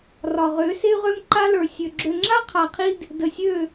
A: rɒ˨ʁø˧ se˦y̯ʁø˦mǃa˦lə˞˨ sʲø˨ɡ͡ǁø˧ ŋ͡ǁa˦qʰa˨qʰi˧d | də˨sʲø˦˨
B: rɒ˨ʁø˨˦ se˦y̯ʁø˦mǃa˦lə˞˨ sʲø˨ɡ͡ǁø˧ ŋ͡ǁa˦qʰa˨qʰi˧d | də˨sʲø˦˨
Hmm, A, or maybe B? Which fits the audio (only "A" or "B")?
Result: B